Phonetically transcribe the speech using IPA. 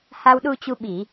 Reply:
h a˧ w ɗ u˧ t͡ɕ u˧ ɓ i˧˩˨

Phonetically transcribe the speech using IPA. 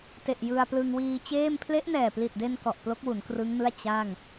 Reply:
t e˨˩ ʔ j ɯ˧ a̯ p l ɯ˧ ŋ w iː˧ t͡ɕ eː˥˩ m pʰ l e˦˥ ʔ n ɛː˨˩ p l i˨˩ t̚ d e˧ n k ɔ˨˩ ʔ p l o˦˥ k̚ w u˩˦ n k r ɯ˦˥ ŋ n ɯ˥˩ a̯ t͡ɕ a˥˩ ŋ

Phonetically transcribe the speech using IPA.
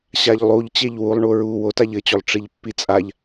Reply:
ɕ a ʎ lˠ u ʎ t͡ɕ e ʎ w u lˠ ɳ u ɹ u w o t a ʎ ɘ t͡ɕ o lˠ ʈ͡ʂ i ʎ pː i t͡sʼ a ʎ

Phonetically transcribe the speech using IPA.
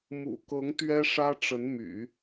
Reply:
m ṵ˨˩ k ɤ˧˥ ŋ t̪ ɥ ɛ˥ ʂ ä˥ ʈ͡ʂ ə˧˥ n m y̰˨˩˦

